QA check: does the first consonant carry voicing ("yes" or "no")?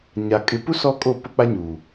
yes